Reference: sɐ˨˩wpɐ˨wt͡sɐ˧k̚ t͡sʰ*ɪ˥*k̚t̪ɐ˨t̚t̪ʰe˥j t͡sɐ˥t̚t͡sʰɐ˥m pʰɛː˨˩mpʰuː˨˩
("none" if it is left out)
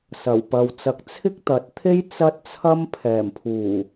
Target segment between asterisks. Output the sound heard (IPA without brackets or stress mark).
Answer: ɪ˥